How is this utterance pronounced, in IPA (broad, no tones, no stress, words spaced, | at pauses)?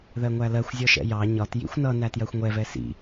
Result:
ðɜŋʷælɜxʷ zʲɔʃɛ̰jɑ ɲɒt jḭxʷnʌ nætjɜxʷŋʷɛv ɛsḭ